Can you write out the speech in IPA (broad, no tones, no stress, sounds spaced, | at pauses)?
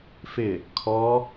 f ɪ | kʰ ɔ